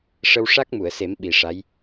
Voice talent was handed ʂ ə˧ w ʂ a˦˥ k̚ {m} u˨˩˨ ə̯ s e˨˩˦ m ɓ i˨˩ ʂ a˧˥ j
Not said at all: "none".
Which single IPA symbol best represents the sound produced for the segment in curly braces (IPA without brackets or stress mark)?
m